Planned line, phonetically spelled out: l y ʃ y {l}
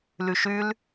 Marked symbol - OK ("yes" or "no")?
yes